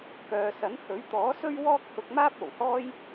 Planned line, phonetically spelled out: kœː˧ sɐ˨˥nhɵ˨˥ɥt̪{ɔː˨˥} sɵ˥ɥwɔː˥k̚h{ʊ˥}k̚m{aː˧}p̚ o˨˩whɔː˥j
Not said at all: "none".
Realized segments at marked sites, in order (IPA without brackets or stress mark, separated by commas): ɔː˨˥, ʊ˧, aː˥